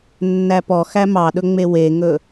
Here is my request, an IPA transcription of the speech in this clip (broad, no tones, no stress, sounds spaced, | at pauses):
nː æ p ɔ x æ m ɑ ɗ ɵ ŋ͡m e w e ŋ ɵ